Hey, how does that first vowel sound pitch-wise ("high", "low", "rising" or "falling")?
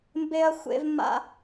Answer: high